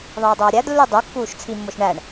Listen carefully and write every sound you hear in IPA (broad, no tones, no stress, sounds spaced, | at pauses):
ðˤ iː dˤ oː ɾʲ æ d lː u dˤ u kː uː ʃ t͡sʰ i mː o ʃ ɳ æ ɳ